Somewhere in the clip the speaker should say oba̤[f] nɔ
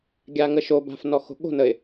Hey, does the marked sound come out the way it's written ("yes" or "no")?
yes